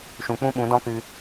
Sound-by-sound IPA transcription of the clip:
ʃ ũ˨ k͡p ũ˦ ɓ ũ˨˦ d ɔ̃˦ k ɨ˧

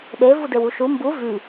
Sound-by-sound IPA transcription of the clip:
ɗ e v u d e w u ʃ u m b u v y

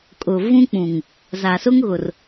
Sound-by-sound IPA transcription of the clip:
kʼ ʊ˨ v ũ˦ k͡p ũ˨ ŋ | z a˨ s ʊ˦ ŋ ɣ ʊ˨ r

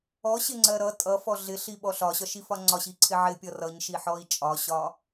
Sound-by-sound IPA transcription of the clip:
ɔ ɕ ɪ ŋ͡ǀ ɜ ɾ ʌ tʼ ʌ f ɔ ɮ ɪ ɬ i ɓ ɔ ɬ ɒ ɕ ɒ ʃ i f ɒ ŋ͡ǀ ɒ ɕ i ǀʰ ɪ ʕ ɪ pʲ ʌ r ʌ ɲ ʃ i ħ ɔ i̯ t͡ʃʼ ɒ ɕ ɒ

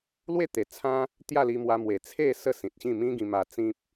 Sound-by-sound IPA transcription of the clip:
l w e˥˧ t̪ e˨˩ t͡sʰ ã˦ | t̪ j a˥˧ l i˧ m w a˧ m w e˨˩ t͡sʰ e˥˧ s ə˥˧ s ĩ˨ t̚ ɕ ĩ˥˧ m ĩ˦ ɡ ĩ˧ m a˧ t͡s ĩ˦ p̚

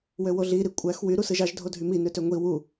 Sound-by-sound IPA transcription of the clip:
w ø w o ɮ i ɾ i kʷʼ æ x w y ɾ u s ɯ ʒ ɑ ʒ dʱ o dʱ y m i n ø t ø ŋʷ i w u

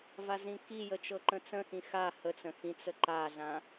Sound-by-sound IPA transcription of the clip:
v a z ĩ k i j ə t͡ʃ ɤ ǃ ə̃ t͡s ə̃ x ĩ x a h ə t͡s ə̃ x ĩ t͡s ə ǃ a ɮ ã

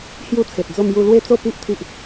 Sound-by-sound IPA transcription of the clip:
h j u˥˧ t͡sʰ e˨ t̚ d͡z o˥˧ m j u˥˧ l w e˥˧ t͡s o˥˧ p i˦ ʔ t̪ʰ i˦ ʔ

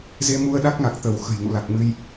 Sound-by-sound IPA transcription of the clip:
z e˧ m u˧ ə̯ ɗ a˦˥ k̚ ŋ a˨˩ k̚ t̪ ə˧˩ w x ə̤˨˩ j ŋ ṵ˧˨ l a˨˩ k̚ m ɨ˧ j

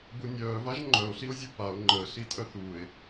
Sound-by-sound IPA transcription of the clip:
b u nʲ œː v a ʒ ŋ͡ǃ œ o̯ ɬ i o̯ zʲ u p a o̯ ŋ͡ǃ əː ɬ i tʼ œ θ uː e̯

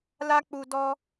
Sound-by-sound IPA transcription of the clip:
l a˦ k͡p u˧ d ɔ˧

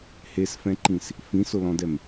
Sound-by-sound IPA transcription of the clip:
h e s f ɛ̃ ǃ ĩ s | f ĩ s ʊ l ɔ̃ d ɛ m

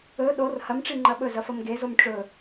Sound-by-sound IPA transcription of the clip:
ɵ ɗ o r h ɐ m ʈ͡ʂ i ŋ͡ǃ ɐ ɓ ɵ z ɐ f ɐ m ɡ e z o m ʈ͡ʂ ɵ

